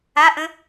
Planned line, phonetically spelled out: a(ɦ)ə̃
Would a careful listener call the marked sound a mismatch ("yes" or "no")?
yes